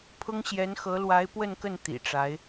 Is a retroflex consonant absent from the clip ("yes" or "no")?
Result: no